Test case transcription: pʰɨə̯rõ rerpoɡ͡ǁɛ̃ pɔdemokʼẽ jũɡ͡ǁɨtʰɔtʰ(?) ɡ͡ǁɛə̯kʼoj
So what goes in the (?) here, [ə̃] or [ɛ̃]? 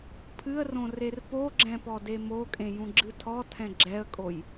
ɛ̃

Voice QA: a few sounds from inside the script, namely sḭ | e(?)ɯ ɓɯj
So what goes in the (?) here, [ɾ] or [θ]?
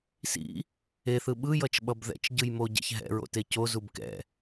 θ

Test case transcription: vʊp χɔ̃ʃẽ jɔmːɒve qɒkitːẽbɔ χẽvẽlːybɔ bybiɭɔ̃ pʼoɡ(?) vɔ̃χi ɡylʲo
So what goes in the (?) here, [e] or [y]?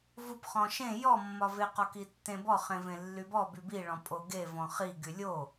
e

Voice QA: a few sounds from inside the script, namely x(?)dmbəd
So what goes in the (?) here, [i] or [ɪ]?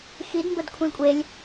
i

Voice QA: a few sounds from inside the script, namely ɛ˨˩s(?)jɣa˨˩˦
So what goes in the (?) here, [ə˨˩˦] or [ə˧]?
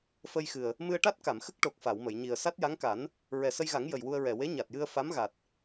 ə˧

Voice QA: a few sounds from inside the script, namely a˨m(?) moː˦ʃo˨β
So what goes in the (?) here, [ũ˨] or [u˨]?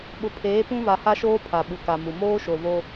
u˨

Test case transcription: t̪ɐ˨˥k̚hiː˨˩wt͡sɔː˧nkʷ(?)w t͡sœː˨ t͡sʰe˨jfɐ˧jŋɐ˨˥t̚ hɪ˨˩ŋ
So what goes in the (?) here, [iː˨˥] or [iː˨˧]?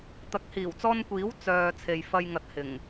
iː˨˥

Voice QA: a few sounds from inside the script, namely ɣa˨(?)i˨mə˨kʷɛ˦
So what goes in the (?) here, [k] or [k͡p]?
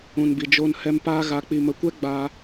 k͡p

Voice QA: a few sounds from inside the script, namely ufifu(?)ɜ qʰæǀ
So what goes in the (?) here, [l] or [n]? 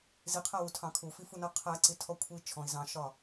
n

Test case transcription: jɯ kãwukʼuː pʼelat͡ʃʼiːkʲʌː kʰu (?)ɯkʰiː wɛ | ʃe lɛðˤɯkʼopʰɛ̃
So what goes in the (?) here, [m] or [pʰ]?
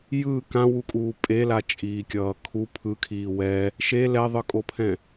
pʰ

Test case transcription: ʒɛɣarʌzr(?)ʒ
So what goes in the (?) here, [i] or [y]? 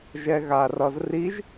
i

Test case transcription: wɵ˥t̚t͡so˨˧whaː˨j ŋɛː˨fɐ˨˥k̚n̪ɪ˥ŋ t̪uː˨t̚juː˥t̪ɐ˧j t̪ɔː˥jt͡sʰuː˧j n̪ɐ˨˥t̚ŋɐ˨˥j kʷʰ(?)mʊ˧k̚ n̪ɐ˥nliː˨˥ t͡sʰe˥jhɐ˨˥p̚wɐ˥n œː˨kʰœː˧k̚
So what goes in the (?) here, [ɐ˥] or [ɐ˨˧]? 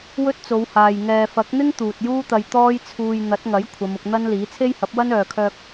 ɐ˨˧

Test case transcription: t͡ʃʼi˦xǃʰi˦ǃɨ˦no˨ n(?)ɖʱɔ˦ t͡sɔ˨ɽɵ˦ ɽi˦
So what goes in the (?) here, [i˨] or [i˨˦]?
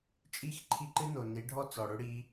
i˨˦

